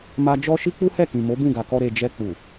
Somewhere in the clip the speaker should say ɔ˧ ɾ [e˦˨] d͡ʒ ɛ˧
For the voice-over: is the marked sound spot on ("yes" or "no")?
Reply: no